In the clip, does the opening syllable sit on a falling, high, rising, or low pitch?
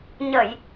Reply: low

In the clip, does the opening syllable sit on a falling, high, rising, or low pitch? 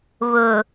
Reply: low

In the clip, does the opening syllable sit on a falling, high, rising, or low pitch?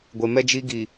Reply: low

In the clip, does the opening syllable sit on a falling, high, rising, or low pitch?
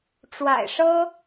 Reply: low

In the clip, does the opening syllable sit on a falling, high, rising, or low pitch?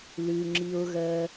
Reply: low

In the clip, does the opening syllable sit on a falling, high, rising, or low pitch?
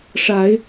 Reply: rising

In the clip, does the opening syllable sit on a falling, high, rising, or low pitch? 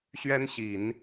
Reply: high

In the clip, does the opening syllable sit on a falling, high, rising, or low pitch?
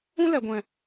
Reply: high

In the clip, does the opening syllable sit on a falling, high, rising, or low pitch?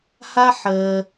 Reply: high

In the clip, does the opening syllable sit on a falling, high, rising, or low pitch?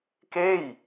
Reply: falling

